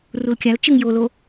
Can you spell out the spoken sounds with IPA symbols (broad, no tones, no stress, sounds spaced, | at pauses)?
r u l kʲ a l t͡ʃ ɯ ŋ j o l o